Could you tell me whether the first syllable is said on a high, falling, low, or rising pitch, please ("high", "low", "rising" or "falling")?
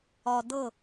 low